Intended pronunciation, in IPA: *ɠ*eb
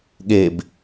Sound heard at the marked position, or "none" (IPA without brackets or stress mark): ɠ